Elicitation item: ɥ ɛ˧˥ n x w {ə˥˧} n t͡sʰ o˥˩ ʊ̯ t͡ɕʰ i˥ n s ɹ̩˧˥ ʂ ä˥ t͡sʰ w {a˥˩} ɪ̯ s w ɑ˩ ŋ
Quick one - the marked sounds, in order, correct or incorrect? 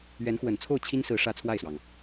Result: incorrect, correct

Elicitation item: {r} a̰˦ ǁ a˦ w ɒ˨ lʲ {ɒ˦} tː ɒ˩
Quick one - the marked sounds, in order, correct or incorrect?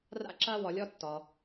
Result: correct, correct

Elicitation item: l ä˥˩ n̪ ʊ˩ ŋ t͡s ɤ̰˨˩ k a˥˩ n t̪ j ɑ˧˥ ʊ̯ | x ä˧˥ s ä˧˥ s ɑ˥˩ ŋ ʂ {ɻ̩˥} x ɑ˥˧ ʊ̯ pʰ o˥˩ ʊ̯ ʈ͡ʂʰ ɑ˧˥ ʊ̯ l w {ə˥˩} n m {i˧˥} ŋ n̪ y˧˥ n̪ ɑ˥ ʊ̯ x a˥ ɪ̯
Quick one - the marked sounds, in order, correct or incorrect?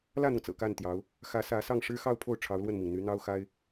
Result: correct, correct, incorrect

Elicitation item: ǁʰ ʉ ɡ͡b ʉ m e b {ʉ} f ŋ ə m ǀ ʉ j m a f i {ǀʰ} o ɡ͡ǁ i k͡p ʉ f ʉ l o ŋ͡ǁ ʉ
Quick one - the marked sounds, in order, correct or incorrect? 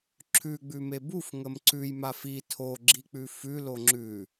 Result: incorrect, incorrect

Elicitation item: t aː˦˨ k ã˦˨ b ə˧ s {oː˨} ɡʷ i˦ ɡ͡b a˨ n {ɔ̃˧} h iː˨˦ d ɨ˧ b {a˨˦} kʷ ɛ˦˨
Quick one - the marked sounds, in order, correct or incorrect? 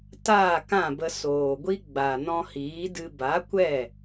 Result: correct, correct, correct

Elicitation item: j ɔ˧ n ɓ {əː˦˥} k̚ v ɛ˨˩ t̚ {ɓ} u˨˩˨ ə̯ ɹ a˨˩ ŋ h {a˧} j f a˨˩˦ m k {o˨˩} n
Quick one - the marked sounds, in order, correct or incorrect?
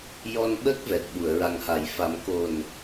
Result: correct, correct, incorrect, correct

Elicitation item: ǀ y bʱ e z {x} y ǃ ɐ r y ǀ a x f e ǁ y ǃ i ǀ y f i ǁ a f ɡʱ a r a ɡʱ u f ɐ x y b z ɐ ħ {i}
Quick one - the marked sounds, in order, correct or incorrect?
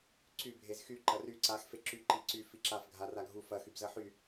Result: correct, incorrect

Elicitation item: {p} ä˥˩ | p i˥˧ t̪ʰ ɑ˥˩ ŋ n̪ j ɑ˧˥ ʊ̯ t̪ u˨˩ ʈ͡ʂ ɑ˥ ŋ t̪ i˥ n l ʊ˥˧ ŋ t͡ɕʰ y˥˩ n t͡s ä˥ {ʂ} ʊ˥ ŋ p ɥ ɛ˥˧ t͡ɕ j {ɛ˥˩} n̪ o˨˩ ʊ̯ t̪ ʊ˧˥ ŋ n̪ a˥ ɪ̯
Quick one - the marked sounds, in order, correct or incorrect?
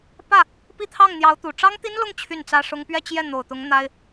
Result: correct, correct, correct

